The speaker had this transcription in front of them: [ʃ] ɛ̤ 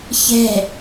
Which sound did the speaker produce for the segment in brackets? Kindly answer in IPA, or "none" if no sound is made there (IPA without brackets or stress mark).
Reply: ç